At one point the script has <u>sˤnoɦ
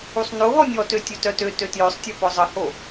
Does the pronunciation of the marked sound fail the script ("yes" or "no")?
no